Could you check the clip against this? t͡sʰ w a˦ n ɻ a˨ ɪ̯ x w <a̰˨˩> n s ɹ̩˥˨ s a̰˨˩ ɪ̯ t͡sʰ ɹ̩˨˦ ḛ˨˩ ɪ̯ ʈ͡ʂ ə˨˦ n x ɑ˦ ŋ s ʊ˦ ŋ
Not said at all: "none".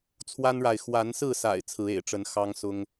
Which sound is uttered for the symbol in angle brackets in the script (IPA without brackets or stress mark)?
a˨˦